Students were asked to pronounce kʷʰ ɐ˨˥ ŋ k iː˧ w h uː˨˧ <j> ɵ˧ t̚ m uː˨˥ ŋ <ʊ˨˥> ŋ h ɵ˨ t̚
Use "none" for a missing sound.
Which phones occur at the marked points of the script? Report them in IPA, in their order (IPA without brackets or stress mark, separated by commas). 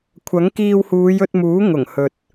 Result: j, ʊ˨˩